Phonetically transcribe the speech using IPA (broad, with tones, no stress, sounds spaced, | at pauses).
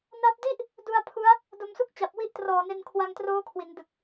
n a˥˩ p̚ d i˥˩ ʔ | d u˧ a̯ pʰ u˦˥ a̯ | d o˧ m s u˥˩ k̚ t͡ɕ a˨˩ p̚ w i˦˥ ʔ t r ɔː˨˩ n e˧ n kʰ w a˧ ŋ t r oː˦˥ kʰ w i˩˦ n d ɯ˨˩ k̚